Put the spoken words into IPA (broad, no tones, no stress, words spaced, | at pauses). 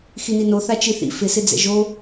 xinino θat͡ʃiθḭ fɪ sɪd͡zɛ̰ʒo